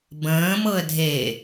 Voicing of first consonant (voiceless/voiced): voiced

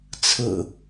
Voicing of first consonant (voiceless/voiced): voiceless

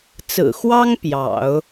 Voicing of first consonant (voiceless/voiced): voiceless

